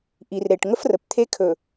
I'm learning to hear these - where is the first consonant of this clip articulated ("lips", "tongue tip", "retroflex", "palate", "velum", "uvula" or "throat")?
throat